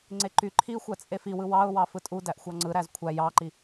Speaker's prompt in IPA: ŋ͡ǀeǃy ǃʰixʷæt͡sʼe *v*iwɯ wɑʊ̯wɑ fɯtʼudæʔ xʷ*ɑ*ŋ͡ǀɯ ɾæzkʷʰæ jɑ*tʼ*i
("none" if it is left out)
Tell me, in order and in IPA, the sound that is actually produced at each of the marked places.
f, ɑ, ǃ

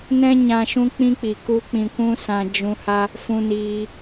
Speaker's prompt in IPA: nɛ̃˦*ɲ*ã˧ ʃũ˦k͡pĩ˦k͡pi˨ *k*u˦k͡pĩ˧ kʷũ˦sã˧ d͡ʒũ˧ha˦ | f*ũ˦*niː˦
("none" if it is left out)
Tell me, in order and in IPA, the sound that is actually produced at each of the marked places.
ɲ, k, ũ˦

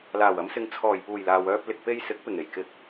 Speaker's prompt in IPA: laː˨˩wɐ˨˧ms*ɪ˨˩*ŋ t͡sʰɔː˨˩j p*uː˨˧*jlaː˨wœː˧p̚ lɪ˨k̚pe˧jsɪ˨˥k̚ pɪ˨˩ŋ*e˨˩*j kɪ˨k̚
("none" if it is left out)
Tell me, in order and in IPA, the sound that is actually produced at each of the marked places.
ɪ˨˧, uː˨˩, e˨˩

